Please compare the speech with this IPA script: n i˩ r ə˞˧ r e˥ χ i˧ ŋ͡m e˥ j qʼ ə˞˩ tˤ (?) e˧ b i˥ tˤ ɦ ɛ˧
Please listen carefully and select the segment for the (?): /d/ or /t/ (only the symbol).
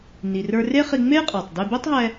d